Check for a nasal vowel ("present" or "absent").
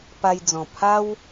present